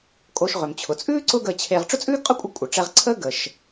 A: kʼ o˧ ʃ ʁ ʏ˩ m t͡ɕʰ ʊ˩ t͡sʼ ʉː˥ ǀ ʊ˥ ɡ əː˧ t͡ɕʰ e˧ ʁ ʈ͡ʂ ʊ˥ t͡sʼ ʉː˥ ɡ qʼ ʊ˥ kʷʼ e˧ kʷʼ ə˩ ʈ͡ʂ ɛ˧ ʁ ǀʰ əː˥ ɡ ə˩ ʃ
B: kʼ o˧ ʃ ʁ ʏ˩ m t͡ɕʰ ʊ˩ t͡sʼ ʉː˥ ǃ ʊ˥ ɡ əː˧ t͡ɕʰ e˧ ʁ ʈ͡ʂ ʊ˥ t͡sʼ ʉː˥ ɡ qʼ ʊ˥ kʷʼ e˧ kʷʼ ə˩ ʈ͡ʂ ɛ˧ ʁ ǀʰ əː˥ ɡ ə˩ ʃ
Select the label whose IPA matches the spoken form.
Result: A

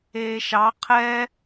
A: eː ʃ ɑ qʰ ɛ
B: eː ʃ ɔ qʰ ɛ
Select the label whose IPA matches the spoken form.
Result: A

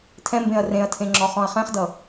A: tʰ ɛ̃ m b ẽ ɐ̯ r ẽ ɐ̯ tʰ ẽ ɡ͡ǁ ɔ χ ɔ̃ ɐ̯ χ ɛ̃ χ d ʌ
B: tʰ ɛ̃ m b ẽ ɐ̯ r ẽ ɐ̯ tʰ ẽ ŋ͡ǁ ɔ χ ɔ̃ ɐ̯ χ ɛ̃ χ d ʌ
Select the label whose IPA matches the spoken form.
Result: B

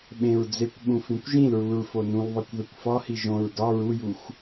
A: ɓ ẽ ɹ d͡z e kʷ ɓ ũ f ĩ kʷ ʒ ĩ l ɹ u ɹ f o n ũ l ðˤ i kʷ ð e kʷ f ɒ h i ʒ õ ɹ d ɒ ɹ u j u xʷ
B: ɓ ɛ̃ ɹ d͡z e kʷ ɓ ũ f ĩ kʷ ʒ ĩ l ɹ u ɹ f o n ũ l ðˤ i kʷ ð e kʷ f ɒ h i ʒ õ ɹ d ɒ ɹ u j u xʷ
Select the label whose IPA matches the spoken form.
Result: A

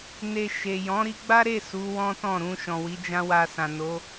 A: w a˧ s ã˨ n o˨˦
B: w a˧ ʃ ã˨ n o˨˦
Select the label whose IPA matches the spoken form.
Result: A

